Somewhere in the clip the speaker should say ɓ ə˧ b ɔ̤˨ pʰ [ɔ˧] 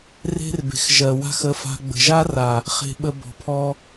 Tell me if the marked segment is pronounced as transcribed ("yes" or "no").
yes